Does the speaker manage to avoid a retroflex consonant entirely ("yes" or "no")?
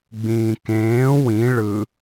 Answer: no